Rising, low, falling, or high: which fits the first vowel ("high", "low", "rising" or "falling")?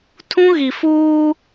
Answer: high